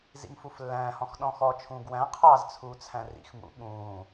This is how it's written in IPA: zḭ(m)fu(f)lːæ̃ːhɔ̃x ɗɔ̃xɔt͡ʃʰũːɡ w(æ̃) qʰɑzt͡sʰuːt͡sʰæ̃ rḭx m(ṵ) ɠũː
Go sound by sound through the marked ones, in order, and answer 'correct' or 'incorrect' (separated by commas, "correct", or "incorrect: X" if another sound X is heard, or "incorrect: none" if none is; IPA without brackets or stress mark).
correct, correct, correct, correct